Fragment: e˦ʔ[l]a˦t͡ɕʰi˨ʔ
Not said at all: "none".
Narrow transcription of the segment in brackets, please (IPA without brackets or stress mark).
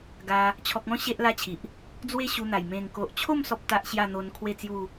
l